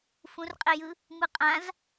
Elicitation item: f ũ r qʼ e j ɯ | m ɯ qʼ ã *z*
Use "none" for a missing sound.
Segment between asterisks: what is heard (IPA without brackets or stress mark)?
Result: z